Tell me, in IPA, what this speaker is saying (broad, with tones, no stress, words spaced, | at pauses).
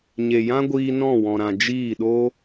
ɲe˨jã˦ɡʷiː˧ nɔ̃˦˨wɔ̃˨ɾã˨ d͡ʒiː˦˨ɗo˦